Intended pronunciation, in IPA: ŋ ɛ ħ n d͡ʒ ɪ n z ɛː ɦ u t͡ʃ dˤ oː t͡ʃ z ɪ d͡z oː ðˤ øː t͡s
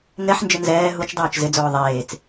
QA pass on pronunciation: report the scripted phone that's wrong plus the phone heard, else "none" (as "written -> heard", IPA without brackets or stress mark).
øː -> eː